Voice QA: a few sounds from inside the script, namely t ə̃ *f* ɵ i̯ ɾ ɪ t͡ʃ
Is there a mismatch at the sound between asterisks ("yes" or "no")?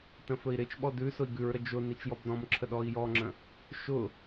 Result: no